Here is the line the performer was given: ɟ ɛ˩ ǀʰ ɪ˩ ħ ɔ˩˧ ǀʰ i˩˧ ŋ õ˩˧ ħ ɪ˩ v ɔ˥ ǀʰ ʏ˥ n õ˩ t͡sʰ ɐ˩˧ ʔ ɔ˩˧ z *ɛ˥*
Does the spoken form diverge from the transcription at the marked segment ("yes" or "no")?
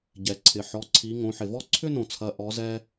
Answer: yes